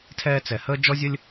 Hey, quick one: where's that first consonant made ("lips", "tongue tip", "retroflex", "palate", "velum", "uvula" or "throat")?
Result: tongue tip